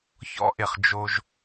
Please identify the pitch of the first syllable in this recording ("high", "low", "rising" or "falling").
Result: high